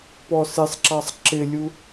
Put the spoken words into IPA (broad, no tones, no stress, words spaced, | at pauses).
pɔsɪsˤǁɑsˤ ǁɪlʲu